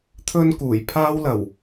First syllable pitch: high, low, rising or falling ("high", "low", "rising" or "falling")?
high